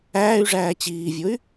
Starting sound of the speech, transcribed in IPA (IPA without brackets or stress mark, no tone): æː